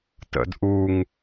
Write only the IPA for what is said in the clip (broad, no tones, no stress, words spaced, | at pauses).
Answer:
tə̰d ʔuŋ